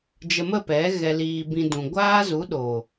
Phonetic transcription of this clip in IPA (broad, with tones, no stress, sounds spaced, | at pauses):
d͡ʒ ə˧ m ə˦˨ p ɛ˨˦ ɣ ɛ˧ l iː˧ b ĩ˧ d ũ˨ ɡʷ aː˦ z u˨˦ ɗ o˨